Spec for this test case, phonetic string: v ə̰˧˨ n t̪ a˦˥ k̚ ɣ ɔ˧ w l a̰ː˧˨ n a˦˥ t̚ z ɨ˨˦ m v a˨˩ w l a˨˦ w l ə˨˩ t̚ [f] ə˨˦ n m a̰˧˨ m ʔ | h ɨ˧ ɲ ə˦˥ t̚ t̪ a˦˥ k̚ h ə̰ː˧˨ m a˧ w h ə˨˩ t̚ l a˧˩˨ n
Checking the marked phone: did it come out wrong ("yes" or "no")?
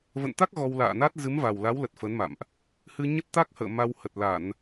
no